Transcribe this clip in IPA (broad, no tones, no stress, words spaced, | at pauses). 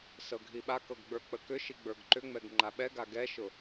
sɤɡʱiɓakɤɡ ɡ͡bə˞k͡pəkʏʃi ɡ͡bə˞ɡǃʏŋ͡mɛɡ ŋ͡ǃaɓɛɡa ɡɛʃʊ